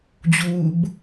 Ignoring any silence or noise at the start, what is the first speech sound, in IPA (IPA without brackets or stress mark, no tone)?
d͡ʑ